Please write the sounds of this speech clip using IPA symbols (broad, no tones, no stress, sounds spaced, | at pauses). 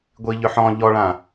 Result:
ɡʷ i ʎ ʏ ħ ɔ̃ ʎ ɔ ɭ ã